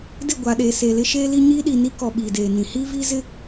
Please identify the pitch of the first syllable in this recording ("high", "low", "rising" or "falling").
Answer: falling